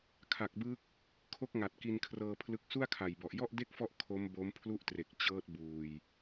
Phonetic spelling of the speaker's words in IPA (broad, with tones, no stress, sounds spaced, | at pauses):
kʰ a˨˩ k̚ b ɯ˦˥ k̚ | kʰ o˦˥ k̚ ŋ a˨˩ t̚ k i˧ n kʰ r ɤː˧ pʰ l ɯ˦˥ k̚ s u˥˩ a̯ kʰ a˨˩ j b ɔ˨˩ ʔ j ɔ˥˩ ʔ d e˥˩ k̚ f ɔ˦˥ ʔ kʰ o˦˥ m b o˦˥ m pʰ l u˥˩ ʔ t r e˨˩ k̚ t͡ɕ ɤː˦˥ t̚ b uː˧ j